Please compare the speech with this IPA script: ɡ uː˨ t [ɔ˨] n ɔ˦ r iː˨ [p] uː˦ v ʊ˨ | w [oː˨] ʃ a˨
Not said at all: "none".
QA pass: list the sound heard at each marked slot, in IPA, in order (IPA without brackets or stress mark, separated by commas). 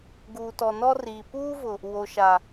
ɔ˨, p, o˨